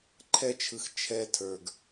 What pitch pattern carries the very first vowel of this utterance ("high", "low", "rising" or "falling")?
high